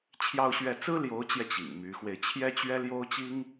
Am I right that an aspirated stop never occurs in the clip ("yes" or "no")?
no